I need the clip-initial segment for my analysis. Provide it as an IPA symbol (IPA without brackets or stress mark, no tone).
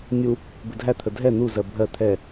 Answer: nʲ